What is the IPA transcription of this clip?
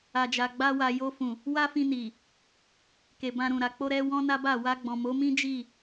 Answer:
a˨ d͡ʒ a˨ ɡ͡b a˧ w a˨ j o˧ f ũ˨ | w a˦ f ĩ˧ n i˨ | k e˨ b ã˧ ɾ ũ˨ ɾ a˨ k͡p o˧ ɾ ɛ˧ w ɔ̃˦ n a˦ b a˦˨ w a˧ ɡ͡b ɔ̃˨ m o˨˦ m ĩ˦ d͡ʒ i˦˨

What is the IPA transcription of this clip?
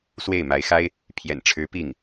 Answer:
s w e˥˩ ɪ̯ m a˧˥ ɪ̯ x a˥ ɪ̯ | pʰ j ɛ̰˨˩ n ʈ͡ʂʰ ɻ̩˧˥ p i˥˩ ŋ

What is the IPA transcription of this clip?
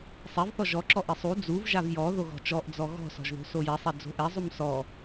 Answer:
sˤ ɛ v θ ɔ ʒ ɔ ǁ ɔ ʔ ɪ sˤ u d͡z u v ʒ a v j ɔ ð o ɣ ɔ̤ t͡ʃ ɔ ʔ d͡z ɔ ɣ ɔ̤ s ɔ̤ ʒ ð o̤ s o j ɛ sˤ ɛ d͡z o̤ ʔ ɛ zˤ u m s ɔ

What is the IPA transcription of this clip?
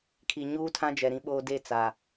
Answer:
kʰ i˨ ɲ uː˦ tʰ ã˦ d͡ʒ ɛ˨ ɾ ĩ˦ ɓ oː˦ d e˦˨ t͡s a˨

